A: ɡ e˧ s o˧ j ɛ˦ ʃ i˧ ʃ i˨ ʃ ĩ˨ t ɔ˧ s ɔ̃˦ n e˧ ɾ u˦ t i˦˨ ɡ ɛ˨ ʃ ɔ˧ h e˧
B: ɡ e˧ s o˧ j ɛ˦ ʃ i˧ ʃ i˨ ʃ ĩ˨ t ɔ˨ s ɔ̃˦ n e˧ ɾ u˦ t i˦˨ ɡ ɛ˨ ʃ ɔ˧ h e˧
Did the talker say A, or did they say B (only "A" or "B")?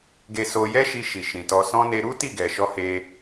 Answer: A